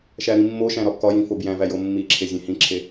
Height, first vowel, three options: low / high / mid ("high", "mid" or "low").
low